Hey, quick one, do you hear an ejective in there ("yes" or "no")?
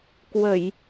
no